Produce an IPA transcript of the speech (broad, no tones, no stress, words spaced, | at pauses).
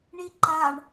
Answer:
ɳiǃaɳ